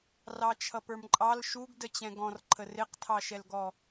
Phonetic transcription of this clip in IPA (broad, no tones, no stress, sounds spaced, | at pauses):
r ɑ t͡ʃʰ ʌ p ə˞ m ǃʼ ɑ l ʃ u ɡ d ə t͡ɕ ɛ̃ ɡ ɔ̃ r ǃʰ ə r ɪ q tʰ ɑ ʃ ɛ l ɡ ɔ